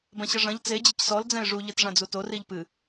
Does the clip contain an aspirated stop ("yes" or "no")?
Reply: no